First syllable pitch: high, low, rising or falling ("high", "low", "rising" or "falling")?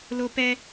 high